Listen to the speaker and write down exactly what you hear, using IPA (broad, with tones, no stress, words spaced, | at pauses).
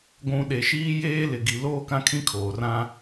ɡʷũ˨ ɗe˨ʃiː˦jeː˦lɪ˨ ɡi˨ loː˦kã˦kʰĩ˦ kʰoː˨rã˦